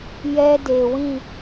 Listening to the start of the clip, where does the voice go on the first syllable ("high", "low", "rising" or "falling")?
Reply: high